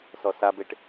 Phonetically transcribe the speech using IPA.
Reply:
s ɔ s a b e ʈ

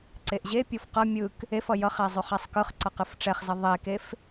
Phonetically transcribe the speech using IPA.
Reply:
ǀ e ʔ ʑ e pʲ o f q ʌ mʲ ɯ k | e f ʌ j ʌ χ ɛ zˤ ʉ χ ɛ sˤ k ɯ χ ǀ ʌ q ɯ f ʈ͡ʂ ɛ χ z ʌ ðˤ e k e f

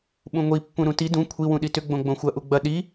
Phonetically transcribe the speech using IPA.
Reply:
ɓ ũ ŋʷ i pː ũ ɾ ũ t i d ũ kʷʰ i w ũ ɗ i t ʏ ɡ͡b õ ɡ͡b õ xʷ ɐ ʔ u ɡ͡b ɐ ɗ i

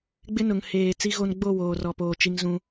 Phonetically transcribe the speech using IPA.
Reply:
ɡ͡b ɪ˦ n ʊ˨ ŋ h eː˨ t͡s i˦ ɣ o˦ n ɡ͡b o˦˨ w oː˨ r ɔ˨ p oː˨ t͡ʃ i˦ ŋ z ũ˦

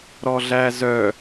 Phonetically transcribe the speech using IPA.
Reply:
ɾ ɔ ɮ æ z œ

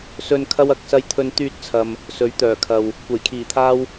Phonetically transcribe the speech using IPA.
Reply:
s ɵ˧ n kʰ ɐ˥ w ɐ˨˥ k̚ s ɐ˥ j t̪ʰ ɵ˥ n t̪ yː˧ t̚ t͡sʰ ɐ˨ m | s ɵ˨˥ ɥ t̪ œː˨˩ kʰ ɐ˨ w | kʷ ɐ˨˩ j kʰ iː˨˩ t̪ʰ aː˥ w

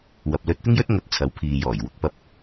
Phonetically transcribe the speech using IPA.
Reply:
w ɐ˨ p̚ l ɵ˧ t̚ t̪ ɪ˥ ŋ j ɵ˥ t̚ ŋ ɐ˧ t̚ t͡sʰ ɐ˨˥ w pʰ iː˨ j ɔː˨˩ j w ʊ˧ k̚ p ɐ˧ p̚

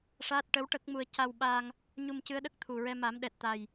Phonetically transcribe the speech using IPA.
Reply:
ʂ aː˦˥ t̚ ʈ əː˧˥ w ʈ ə˦˥ k̚ m u˧ ə̯ c a˧ w ɓ a˧ ŋ | ɲ u˧ m c ɨ˧˥ ə̯ ɗ ə˦˥ k̚ t̪ʰ u˨˩ ɹ ɛ˧ m a˨˩˦ m ɗ ɛ˨˩ t̚ t̪ a˨˩ j

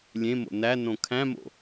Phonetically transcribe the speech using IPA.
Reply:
lʲ ẽ m o̰ n æ n õ kʰ æ̃ m o̰

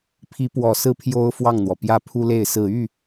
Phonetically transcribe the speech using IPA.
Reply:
pʰ i˧˥ p w ɔ˨˩ s ɹ̩˥˩ pʰ j o˥ ʊ̯ f w ɑ˥˩ ŋ n̪ w ɔ˩ p j ä˥˩ pʰ u˥ l e˥˩ ɪ̯ s ɹ̩˨˩ y˥˩

